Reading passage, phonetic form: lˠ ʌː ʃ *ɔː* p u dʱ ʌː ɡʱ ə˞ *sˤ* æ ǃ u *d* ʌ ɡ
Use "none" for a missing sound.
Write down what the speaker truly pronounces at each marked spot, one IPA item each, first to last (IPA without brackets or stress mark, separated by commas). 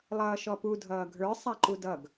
ɔ, sˤ, d